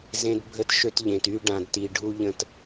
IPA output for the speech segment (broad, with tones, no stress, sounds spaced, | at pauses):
z ẽ˦ d bʱ ə˦ t ʃ ø˦ t ʎ ẽ˨ t y˦ ɖ ã˨ d t i˨ ɖʱ u˦ ʎ ə̃˦˨ t